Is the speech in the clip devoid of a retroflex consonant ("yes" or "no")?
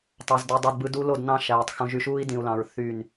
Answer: yes